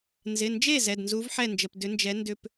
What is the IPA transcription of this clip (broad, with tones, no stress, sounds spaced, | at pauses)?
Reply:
n z ɪ˩˧˩ n d͡ʒ e˥˩ z ɛ˩˧˩ d n z u˨˥ v ħ ɛ˥˩ n d͡ʒ ə˩˧˩ p d ʏ˨˥ n d͡ʒ ɛ˨˥ n d ʏ˥˧ p